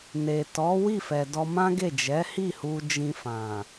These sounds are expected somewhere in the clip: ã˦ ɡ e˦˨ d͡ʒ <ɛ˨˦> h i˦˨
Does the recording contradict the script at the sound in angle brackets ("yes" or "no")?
no